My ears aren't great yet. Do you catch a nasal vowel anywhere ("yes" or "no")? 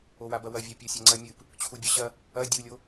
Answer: no